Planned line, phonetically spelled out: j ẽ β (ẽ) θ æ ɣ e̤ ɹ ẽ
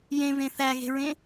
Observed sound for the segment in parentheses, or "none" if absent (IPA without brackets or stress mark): ẽ